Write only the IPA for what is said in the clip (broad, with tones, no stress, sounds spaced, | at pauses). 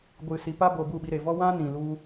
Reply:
ɡʷ ɨ˨ s i˨ p a˦ b o˨ b u˦˨ ɓ i˧ ɾ e˨ v ɔ˦ w ã˦ n ĩ˨ l u˧